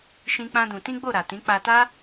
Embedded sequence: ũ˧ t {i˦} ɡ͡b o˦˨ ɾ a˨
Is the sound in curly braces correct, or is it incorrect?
incorrect